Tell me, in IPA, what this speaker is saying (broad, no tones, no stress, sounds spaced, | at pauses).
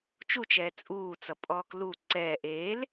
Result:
t͡ʃ u t͡ʃ ɛː t͡sʼ uː t͡s ʌ pʼ ɔː k l u ǀ ɛː ʔ eː l